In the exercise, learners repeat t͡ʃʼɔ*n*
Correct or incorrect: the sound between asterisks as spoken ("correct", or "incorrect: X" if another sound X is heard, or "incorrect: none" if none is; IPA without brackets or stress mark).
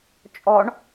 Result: incorrect: ɳ